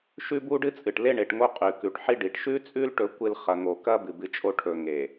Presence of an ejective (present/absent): present